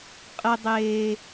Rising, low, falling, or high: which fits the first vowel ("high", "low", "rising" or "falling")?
high